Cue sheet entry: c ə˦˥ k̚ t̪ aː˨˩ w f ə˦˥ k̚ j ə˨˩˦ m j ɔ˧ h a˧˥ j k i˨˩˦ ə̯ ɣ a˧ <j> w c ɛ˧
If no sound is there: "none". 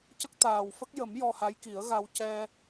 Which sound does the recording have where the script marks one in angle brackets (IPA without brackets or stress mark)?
none